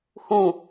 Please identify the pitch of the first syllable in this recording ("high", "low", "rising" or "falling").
falling